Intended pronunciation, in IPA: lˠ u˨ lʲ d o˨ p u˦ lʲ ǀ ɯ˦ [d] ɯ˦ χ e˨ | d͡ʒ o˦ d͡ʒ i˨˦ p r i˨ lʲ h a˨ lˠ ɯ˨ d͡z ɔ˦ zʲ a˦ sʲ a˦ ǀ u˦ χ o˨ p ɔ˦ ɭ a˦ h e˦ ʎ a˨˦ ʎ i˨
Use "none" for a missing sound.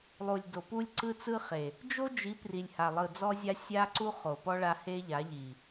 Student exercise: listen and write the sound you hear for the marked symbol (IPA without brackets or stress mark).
t͡s